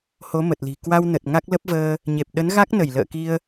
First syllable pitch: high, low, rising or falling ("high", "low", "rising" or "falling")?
rising